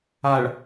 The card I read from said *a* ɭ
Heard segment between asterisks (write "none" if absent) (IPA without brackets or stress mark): a